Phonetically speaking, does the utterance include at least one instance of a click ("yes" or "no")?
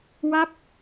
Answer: no